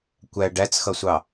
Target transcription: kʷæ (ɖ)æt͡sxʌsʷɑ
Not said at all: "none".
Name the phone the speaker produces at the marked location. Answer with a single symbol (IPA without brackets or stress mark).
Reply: ɖ